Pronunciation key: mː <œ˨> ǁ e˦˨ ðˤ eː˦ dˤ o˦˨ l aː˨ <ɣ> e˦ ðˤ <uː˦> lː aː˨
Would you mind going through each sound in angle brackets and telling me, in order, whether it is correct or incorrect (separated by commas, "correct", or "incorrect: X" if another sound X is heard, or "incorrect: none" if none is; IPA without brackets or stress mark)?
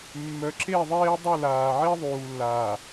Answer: correct, incorrect: ʕ, incorrect: uː˨